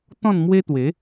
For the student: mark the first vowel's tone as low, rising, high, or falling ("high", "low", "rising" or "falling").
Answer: falling